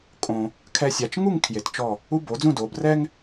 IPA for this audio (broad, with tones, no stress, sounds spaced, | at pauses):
kʼ õ˧ | kʰ ɛ˧ sʲ a˩˧ t͡ʃ ŋ u˥˧ ŋ kʰ j e˩˧ t t͡ʃ ɔ˧˩ | u˧ b o˩˧ d͡z ũ˥˧ d o˩˧ b r ɛ˥ ŋ